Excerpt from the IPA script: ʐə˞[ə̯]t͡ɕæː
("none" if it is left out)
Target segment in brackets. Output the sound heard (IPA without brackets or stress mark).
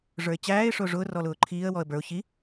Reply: ɪ̯